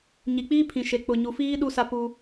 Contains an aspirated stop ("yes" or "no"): yes